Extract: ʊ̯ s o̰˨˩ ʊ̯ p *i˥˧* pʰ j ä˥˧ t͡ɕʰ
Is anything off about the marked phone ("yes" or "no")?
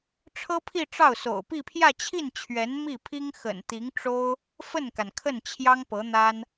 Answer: no